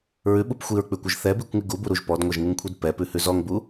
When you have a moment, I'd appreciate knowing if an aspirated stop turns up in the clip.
yes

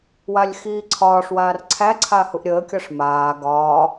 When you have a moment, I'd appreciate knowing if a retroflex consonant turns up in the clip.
yes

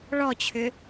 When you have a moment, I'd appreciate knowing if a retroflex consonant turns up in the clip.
yes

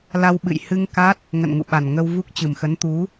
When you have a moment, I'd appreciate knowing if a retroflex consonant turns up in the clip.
no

